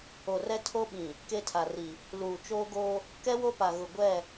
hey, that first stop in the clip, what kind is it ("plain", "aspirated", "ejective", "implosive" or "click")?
aspirated